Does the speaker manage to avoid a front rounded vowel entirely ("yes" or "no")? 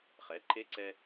yes